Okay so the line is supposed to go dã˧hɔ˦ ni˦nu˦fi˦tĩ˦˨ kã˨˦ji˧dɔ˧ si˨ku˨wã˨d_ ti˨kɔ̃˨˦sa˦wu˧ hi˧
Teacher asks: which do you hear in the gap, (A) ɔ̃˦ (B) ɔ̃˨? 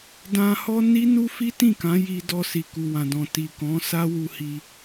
B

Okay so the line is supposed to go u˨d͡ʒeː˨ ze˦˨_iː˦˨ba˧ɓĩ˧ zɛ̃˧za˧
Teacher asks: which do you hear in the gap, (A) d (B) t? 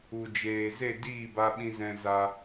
A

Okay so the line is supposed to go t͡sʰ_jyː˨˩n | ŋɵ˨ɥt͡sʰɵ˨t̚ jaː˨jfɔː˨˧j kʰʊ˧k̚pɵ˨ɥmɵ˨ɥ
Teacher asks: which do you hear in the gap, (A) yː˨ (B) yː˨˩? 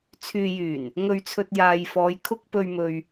A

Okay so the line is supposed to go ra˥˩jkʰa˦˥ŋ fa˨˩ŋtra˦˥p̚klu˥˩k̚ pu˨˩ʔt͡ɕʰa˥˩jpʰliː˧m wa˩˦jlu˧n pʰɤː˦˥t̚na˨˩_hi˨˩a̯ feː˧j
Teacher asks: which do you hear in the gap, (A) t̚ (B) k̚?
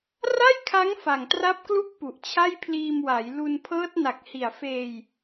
B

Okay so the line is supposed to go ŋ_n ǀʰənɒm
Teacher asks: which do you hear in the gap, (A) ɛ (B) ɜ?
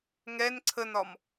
A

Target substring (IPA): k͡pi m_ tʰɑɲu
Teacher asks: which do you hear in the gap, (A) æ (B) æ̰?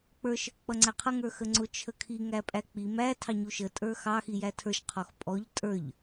A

